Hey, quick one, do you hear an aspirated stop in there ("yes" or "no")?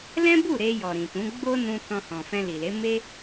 no